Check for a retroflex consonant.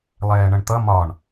present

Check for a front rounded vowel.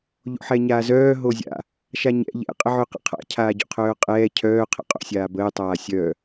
present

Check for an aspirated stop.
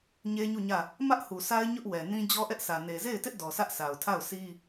present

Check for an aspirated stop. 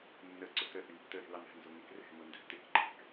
absent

